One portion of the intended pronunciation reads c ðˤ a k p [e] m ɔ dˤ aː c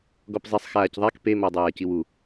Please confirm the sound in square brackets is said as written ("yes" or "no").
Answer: yes